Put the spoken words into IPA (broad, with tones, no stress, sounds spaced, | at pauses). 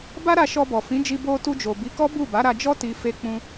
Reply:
b a˦ ɾ a˧ ʃ ɔ˧ b ɔ˨ f ĩ˨˦ d͡ʒ i˧ b o˧ t u˧ d͡ʒ o˨ b i˨˦ k ɔ˦ b u˦˨ b a˨˦ ɾ a˧ d͡ʒ ɔ˦ t i˧ f e˧ k͡p ũ˧